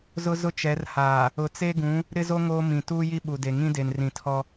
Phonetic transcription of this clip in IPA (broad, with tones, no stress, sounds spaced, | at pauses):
z ʊ˦ z ʊ˦ t͡ʃ ɛ˨˦ r h aː˨ | ʊ˨ t͡s e˦ ɡ ũ˨˦ | ɾ ɪ˦ z o˦ ŋ oː˦ m ĩ˨ t uː˦ j i˦ ɓ u˨ d e˨ ŋ ĩ˦ d e˨ n r ĩ˨ tʰ ɔ˦